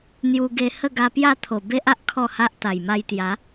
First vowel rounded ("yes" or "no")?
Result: yes